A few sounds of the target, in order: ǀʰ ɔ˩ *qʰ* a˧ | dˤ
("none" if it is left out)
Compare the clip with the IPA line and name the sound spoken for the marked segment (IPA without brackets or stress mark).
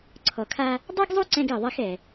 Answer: kʰ